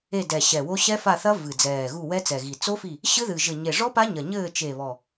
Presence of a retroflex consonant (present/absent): present